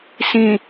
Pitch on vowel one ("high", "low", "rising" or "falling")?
low